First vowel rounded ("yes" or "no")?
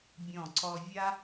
yes